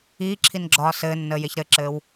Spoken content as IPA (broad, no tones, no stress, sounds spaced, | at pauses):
iː ǁʰ i n ɡ͡ǁ ɒː s ɘː nː əː j e ç ɾ ɘ ǁ ɘː w